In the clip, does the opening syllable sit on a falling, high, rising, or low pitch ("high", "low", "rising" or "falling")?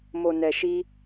low